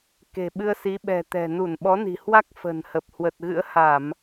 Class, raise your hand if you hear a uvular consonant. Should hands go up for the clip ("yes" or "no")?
no